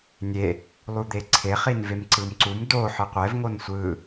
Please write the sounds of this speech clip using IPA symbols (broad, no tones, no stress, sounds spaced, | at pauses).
nʲ e | lˠ u d̪ e ǀʰ e χ i n v e m ǀ ɯ m ǀ u m d o ħ ɯ qʷ ɛ v ŋ o n sʷ ɯ